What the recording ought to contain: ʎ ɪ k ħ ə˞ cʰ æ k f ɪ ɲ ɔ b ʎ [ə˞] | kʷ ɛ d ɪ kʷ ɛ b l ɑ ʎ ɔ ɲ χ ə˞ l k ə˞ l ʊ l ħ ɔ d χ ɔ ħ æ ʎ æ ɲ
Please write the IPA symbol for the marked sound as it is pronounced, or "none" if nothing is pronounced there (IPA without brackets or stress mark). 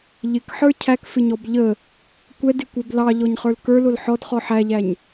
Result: ə